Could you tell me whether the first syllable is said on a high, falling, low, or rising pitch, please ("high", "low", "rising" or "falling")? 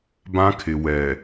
high